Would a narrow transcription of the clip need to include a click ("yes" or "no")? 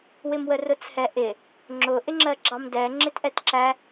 yes